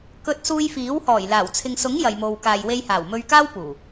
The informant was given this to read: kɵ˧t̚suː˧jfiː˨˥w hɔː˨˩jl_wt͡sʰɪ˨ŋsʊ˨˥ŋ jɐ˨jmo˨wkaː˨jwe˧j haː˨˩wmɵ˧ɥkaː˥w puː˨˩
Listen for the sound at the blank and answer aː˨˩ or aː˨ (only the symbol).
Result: aː˨˩